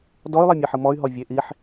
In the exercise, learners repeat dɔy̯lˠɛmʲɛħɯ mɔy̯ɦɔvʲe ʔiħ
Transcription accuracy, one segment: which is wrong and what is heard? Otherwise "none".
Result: none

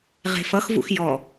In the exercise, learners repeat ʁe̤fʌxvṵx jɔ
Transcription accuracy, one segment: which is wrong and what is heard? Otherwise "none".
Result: none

